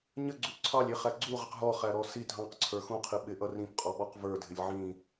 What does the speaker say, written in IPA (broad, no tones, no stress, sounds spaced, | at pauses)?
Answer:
ɲ ə ɡ͡ǀ u ǀʰ ɑ lʲ i χ æ ɡ͡ǀ u ʁ ə q ɦ ɔ χ æ ɾ ɔ s i dʱ ɑ̃ q ǀʰ ə˞ x ũ qʰ i ɓ ɪ ʔ ʌ r ĩ p qʼ ɔ ɓ ɔ q v ə˞ dʱ ɪ lʲ ʕ ĩ